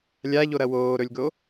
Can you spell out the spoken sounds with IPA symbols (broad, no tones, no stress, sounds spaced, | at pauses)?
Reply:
lʲ a ʎ o ɾ ɐ w oː ɾ ɵ lʲ ɡ o